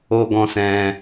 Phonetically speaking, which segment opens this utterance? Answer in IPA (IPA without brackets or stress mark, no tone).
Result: o